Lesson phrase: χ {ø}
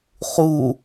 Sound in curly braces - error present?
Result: yes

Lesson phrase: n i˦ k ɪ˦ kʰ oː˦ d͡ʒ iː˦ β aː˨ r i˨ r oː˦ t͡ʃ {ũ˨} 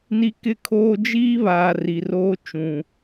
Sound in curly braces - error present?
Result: no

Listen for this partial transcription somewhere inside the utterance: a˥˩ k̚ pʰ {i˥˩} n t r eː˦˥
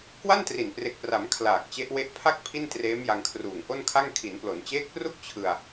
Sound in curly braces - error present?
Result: no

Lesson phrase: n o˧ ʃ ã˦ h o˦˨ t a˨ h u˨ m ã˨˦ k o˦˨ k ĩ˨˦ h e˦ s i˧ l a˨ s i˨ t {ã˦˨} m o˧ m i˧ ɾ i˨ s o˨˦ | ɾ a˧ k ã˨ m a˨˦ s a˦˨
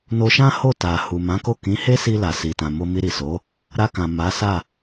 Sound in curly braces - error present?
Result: yes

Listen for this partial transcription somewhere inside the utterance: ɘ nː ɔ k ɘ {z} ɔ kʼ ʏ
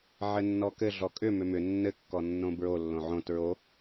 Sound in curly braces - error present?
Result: yes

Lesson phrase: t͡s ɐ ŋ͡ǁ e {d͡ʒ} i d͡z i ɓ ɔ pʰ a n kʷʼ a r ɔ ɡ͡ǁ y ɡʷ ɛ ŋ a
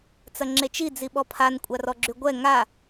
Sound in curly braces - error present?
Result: yes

